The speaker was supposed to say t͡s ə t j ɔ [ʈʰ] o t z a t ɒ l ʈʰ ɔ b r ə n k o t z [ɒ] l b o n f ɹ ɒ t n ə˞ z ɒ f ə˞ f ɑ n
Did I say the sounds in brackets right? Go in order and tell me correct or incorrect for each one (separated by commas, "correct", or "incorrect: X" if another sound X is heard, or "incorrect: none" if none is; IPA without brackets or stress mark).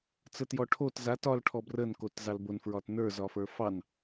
correct, incorrect: ɑ